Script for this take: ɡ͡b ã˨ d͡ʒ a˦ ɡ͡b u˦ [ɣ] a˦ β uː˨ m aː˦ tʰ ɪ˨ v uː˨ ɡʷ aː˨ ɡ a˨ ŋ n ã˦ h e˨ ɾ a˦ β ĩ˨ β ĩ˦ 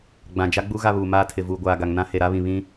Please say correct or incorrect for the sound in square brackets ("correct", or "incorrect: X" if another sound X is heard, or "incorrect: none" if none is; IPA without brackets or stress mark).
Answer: correct